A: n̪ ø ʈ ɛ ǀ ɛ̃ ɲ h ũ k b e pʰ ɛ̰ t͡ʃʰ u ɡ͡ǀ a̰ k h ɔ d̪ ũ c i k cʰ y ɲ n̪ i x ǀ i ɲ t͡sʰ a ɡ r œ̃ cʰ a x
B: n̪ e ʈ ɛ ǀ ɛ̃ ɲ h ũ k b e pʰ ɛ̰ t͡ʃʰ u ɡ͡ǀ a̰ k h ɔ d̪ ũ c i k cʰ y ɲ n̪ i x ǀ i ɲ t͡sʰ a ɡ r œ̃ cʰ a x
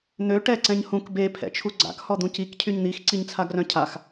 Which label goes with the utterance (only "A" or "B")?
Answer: A